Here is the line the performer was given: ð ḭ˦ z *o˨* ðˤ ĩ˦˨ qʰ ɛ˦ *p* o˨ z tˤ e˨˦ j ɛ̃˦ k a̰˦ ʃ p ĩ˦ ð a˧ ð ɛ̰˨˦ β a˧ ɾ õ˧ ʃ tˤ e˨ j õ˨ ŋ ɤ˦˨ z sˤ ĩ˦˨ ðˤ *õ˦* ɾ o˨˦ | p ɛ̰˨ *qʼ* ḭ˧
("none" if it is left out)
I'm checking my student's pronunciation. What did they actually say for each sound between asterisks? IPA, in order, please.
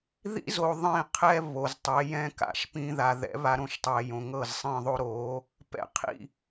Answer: o˨, β, o˦, qʰ

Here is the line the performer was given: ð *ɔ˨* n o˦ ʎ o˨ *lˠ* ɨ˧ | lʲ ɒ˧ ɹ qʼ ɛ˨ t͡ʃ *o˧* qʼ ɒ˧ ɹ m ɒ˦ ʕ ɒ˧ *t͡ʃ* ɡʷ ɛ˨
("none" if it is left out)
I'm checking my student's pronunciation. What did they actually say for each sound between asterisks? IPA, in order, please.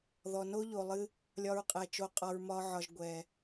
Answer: ɔ˨, lˠ, o˧, ʒ

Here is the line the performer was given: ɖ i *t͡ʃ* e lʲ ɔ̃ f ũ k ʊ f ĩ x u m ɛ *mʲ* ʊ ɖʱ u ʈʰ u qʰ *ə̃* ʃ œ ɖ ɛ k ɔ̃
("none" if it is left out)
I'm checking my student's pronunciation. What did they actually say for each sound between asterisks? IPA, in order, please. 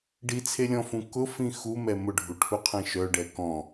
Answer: t͡sʰ, m, ɛ̃

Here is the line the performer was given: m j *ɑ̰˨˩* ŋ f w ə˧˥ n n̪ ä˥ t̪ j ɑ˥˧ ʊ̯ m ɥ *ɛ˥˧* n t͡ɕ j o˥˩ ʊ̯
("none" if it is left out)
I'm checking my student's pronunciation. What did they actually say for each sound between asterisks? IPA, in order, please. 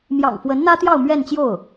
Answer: ɑ̰˨˩, ɛ˥˧

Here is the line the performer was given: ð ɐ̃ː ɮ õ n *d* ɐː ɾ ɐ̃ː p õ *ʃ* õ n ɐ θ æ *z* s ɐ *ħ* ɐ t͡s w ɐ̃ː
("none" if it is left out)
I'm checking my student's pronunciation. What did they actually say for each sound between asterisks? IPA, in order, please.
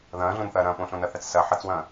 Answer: θ, ɬ, t͡s, ħ

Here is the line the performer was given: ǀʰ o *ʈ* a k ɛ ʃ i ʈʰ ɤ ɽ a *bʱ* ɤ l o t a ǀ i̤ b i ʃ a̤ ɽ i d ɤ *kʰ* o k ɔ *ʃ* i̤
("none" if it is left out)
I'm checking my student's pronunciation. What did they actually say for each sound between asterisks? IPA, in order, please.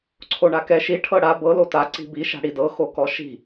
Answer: ɳ, b, x, ʃ

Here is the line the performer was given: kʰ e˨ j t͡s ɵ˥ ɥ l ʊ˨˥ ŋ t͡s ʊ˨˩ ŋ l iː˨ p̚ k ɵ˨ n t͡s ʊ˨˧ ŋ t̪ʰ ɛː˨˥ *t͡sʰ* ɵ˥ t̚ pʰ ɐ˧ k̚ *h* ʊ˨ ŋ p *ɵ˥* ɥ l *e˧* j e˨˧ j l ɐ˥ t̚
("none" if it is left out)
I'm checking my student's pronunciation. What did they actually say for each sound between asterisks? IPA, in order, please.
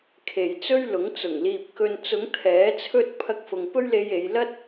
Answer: t͡sʰ, f, ɵ˥, e˧

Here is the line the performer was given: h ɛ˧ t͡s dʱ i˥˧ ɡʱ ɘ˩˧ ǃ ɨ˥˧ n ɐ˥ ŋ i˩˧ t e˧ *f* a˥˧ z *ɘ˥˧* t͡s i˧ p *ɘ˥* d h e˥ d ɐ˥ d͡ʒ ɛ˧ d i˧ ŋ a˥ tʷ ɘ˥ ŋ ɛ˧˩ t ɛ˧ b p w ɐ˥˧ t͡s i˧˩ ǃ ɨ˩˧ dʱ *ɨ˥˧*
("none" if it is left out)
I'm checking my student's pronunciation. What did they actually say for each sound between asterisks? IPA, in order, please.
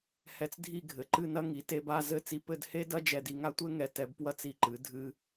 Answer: b, ɘ˥˧, ɘ˥˧, ɨ˧

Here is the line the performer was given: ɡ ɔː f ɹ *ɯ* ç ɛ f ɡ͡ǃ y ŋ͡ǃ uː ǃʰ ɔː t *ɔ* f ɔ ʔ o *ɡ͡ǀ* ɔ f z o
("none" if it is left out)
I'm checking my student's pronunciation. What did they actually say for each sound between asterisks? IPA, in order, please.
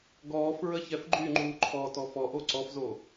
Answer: ə, ɔ, ǀ

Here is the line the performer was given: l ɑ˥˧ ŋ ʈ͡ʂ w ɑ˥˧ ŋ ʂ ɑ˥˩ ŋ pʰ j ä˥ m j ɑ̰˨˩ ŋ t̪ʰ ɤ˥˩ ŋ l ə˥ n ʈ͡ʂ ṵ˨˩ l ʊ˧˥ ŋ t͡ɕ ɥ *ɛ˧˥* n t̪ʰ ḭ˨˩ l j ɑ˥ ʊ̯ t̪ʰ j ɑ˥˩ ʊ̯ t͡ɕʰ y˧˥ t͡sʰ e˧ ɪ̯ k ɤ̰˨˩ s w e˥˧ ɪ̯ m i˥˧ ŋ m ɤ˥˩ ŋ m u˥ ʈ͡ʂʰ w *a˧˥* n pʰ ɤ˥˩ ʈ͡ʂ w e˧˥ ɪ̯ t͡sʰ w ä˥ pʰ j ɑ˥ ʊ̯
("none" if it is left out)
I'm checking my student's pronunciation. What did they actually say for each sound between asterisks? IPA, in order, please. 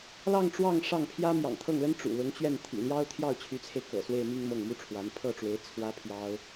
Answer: ɛ˥˩, a˧˥

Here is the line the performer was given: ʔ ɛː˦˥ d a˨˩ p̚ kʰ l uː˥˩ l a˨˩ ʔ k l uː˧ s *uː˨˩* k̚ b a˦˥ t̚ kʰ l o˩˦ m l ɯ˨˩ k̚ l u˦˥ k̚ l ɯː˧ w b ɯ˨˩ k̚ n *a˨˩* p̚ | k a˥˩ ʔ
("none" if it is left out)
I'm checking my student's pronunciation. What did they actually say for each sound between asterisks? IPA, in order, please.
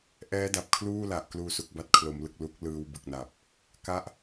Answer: u˨˩, a˨˩

